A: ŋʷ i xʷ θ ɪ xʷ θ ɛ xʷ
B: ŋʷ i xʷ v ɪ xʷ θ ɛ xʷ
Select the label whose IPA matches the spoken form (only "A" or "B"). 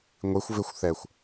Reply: B